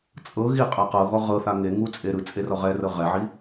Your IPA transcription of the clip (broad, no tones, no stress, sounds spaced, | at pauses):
t͡sʼ ɤ ɣ i qʼ a q ɤ ɣ ɔ ʁ ɤ θ a ŋ e ŋ u t͡sʼ e ɾ ɯ t͡sʼ e r ɔ ʁ ɛ r ɤ ʁ ɛ ʕ i